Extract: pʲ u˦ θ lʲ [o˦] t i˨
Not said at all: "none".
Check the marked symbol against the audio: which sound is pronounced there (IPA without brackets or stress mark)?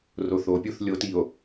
o˦